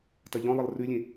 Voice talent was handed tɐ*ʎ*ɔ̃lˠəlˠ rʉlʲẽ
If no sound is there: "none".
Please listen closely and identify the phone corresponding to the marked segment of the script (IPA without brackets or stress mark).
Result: ʎ